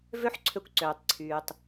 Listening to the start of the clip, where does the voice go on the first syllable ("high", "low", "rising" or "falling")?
high